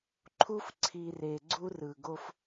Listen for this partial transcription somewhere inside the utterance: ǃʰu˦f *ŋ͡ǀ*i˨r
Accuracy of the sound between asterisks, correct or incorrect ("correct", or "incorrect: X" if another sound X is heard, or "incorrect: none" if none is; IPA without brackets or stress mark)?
incorrect: ǀʰ